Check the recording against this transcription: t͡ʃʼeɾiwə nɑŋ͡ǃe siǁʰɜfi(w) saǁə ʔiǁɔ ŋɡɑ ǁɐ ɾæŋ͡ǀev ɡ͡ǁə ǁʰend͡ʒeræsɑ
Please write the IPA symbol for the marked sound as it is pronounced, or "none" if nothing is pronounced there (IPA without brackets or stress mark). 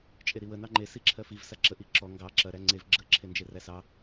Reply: v